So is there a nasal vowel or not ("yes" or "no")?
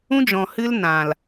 yes